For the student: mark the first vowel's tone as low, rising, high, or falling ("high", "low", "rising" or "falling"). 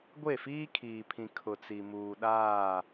falling